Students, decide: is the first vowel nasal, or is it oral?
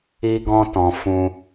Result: oral